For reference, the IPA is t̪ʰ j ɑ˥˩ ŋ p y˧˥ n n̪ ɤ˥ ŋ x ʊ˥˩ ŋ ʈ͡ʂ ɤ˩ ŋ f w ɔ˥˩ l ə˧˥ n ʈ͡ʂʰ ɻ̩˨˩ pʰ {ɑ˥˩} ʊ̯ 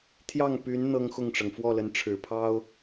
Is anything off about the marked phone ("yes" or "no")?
yes